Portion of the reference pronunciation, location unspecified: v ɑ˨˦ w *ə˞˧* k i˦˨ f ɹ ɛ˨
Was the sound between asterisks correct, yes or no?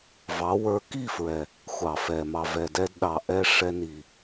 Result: yes